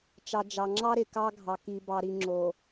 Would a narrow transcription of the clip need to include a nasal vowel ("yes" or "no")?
no